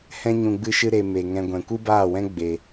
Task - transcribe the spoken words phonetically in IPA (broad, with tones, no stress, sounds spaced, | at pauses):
h ɛ̃˦ ɲ ũ˧ ɡ͡b ɨ˦ ʃ ɨ˦ ɾ e˦ m e˧ ŋ ɛ̃˦ ɡʷ ɛ̃˨ kʷ ɨ˦ b aː˦˨ w ɛ̃˦ ɡ͡b e˧